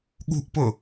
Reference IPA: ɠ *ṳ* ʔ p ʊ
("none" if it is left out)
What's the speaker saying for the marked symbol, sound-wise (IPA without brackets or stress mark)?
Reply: ṳ